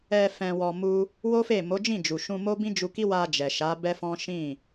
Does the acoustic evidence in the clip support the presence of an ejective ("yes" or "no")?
no